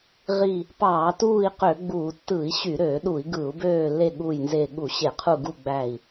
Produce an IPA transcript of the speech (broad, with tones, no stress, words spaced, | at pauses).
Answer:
ʁi˦˨ | pɑː˧˩˧tuː˦˨i̯ qø˧˩˧ɡ͡buː˧˩˧ tːɯ˧˩˧i̯ɕy˧˩˧ ɾøː˧˩˧ɗu˧˩˧i̯ ɡɯ˧˩˧u̯bøː˦˨lːe˦˨ ɠu˦˨jnze˦˨ ɠu˧˩˧ɕe˧˩˧qʰu˦˨ɡu˦˨ ɡ͡bæ˦˨i̯